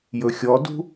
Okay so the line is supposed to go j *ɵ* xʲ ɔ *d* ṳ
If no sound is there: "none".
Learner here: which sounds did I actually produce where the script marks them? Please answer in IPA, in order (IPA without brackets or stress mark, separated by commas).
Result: ɵ, d